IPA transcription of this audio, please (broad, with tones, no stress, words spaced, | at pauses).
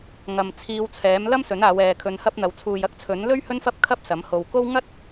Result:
ŋɐ˨mt͡sʰiː˧wt͡sʰɛː˨˥m lɐ˥msɵ˨˥naː˨˧w ɛː˨kʰɵ˧nhɐ˥p̚n̪ɐ˨˥w t͡sʰuː˨jɐ˥k̚t͡sʰɵ˨˥nlɵ˥ɥ hɵ˥nfɐ˥p̚kʰɐ˥p̚ sɐ˨˥mho˧w ko˥w ŋɐ˥t̚